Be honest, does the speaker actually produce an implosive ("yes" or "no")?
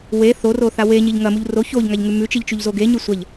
no